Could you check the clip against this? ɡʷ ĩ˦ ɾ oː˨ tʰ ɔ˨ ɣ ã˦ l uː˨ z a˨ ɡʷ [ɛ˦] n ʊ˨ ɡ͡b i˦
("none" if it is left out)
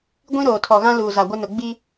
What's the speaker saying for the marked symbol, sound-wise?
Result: ɪ˦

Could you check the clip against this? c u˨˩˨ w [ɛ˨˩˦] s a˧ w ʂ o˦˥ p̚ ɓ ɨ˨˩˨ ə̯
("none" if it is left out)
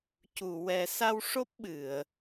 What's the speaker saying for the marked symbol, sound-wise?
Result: ɛ˨˩˦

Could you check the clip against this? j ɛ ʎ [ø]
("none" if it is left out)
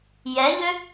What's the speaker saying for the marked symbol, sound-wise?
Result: ø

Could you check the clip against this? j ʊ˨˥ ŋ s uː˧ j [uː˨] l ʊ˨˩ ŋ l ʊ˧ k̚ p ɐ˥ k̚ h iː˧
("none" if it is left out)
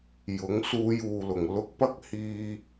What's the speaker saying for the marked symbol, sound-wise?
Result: uː˨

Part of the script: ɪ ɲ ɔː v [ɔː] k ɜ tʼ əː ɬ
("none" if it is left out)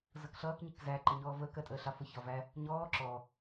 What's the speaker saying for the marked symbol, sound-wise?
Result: əː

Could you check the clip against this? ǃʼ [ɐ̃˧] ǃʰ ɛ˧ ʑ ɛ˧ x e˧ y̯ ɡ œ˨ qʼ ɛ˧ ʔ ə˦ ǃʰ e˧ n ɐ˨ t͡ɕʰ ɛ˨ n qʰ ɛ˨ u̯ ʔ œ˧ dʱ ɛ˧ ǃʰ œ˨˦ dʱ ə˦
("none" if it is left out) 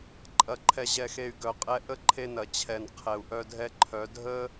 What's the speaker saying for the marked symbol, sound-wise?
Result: ɐ˧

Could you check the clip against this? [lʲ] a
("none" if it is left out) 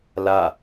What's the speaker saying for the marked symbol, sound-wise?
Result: l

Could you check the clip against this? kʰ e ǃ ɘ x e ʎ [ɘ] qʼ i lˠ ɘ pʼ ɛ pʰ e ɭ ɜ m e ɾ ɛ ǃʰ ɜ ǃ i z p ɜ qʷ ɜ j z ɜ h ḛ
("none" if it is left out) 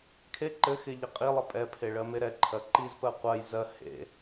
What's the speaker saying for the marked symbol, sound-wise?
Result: ɘ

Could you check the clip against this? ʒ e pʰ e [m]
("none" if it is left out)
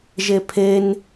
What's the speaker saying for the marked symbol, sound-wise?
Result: n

